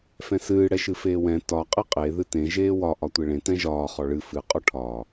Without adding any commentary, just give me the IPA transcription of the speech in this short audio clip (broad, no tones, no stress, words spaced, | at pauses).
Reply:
fɛ̃sɨː ɽɛʃɨfeːwɛ̃ tɒ qʼeqʼe ðɨtẽ ʒeːwɒ ʔɒtʷeɭẽ tɛ̃ʒɒː χɔɭɨ fɨ qʼɔʈʰɒː